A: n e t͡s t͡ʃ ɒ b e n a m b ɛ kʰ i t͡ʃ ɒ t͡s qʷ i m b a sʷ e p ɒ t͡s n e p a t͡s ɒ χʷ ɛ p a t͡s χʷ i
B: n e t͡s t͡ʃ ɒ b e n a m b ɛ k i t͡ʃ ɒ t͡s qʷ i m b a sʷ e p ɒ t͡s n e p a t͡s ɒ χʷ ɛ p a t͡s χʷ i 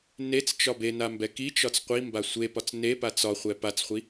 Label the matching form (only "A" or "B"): B